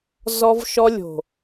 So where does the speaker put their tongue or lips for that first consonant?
tongue tip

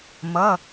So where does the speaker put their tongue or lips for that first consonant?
lips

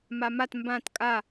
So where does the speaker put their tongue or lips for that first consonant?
lips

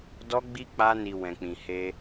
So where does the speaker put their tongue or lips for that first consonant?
tongue tip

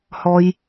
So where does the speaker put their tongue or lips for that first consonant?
throat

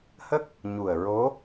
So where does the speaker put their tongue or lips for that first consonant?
throat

